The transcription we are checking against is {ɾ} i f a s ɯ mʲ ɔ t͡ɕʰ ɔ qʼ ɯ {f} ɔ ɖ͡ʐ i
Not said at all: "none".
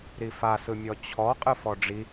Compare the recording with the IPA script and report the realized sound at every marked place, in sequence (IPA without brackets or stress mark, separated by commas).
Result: ɾ, f